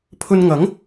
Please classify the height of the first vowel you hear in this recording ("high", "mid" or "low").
mid